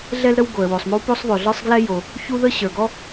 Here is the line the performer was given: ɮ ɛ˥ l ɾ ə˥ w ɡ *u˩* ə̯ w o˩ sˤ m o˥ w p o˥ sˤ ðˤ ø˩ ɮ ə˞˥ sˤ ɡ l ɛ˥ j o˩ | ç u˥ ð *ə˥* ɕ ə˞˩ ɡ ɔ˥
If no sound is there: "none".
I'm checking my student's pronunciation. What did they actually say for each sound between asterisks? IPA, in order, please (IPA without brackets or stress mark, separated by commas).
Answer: o˩, ə˥